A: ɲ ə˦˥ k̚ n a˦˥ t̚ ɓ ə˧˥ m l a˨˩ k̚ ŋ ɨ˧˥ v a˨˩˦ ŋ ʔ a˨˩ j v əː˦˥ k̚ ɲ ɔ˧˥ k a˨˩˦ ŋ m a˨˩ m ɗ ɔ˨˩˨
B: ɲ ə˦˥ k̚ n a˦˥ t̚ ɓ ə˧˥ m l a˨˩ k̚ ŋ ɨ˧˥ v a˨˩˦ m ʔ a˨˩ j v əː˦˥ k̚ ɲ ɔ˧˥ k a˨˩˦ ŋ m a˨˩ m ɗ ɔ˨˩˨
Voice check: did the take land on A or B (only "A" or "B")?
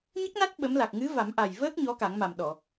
B